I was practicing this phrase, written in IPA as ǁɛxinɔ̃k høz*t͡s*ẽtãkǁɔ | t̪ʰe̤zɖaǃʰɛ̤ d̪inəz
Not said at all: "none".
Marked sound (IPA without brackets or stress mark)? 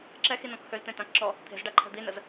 t̪